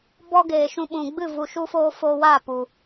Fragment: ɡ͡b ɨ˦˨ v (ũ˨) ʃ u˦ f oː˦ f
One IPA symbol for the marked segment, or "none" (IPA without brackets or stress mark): u˨